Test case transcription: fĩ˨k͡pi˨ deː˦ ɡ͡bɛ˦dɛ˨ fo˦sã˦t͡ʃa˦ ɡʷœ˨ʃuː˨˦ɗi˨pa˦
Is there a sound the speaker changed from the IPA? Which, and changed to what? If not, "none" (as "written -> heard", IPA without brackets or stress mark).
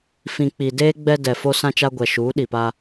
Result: œ˨ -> ɛ˨